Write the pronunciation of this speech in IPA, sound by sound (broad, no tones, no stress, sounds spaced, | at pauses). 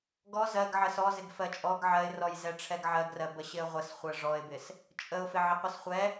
ɡ ɔ z ɜ ɡ ʕ ə s ɔ z ɪ ɡ f ɜ t͡ʃʼ ɔ ɡ ʕ ɜ ɪ̯ r ɔ j z ɛ ʈ͡ʂʰ ɛ ɡ ʕ ɜ ɡ r ɜ b ə ɕ ɪ ə̯ ʁʷ ə s χʷ ɜ ʐ ɔ ɪ̯ b ɪ s | t͡ʃʼ ə ʊ̯ f ɪ ʕ ɪ qʷ ə s χʷ ɛ